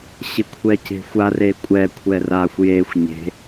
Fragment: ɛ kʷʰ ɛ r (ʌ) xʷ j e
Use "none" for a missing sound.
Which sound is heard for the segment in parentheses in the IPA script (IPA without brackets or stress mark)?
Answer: a